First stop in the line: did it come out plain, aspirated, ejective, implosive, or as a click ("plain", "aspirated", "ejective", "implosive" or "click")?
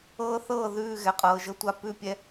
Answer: ejective